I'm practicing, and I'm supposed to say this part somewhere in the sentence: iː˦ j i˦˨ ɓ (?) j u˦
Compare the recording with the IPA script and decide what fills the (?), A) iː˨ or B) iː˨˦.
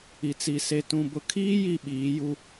B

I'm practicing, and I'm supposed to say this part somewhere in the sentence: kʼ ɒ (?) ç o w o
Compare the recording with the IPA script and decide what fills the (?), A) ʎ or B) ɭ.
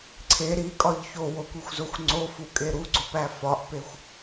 A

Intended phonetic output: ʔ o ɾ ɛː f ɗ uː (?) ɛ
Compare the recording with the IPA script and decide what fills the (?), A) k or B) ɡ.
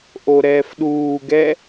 B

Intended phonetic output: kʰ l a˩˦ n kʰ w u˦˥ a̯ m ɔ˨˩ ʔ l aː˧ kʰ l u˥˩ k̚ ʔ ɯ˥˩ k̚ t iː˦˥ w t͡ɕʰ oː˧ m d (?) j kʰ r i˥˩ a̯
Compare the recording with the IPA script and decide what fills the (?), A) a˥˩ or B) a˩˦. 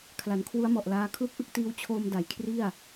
B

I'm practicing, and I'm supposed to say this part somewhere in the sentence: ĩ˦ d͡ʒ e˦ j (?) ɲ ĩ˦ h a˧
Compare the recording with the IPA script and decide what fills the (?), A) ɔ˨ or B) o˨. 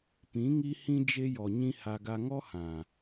A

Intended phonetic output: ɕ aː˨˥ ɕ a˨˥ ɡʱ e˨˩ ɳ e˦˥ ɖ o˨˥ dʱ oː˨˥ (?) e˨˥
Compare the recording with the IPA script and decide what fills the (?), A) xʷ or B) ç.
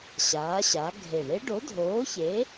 B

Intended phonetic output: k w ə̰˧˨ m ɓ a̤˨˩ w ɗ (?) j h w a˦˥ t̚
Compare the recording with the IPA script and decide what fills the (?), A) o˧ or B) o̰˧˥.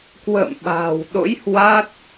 B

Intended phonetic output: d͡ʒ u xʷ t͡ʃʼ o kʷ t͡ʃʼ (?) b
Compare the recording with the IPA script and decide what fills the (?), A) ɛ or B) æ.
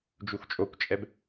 A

